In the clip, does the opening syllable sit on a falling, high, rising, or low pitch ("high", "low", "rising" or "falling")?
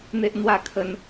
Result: high